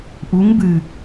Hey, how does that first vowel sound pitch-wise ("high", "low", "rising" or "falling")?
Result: rising